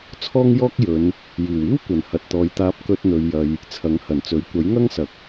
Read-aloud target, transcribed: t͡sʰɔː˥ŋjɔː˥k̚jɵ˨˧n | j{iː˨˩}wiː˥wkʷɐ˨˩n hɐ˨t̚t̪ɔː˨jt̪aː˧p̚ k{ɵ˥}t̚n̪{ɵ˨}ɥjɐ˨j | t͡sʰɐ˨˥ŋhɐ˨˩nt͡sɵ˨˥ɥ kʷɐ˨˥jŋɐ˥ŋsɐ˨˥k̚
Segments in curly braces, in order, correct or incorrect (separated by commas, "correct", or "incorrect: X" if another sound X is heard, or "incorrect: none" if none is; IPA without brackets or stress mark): correct, incorrect: ɵ˧, correct